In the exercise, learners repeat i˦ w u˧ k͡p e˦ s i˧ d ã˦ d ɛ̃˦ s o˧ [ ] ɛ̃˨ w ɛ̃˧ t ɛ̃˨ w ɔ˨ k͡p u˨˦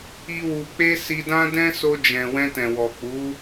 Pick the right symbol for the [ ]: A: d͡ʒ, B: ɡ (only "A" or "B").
A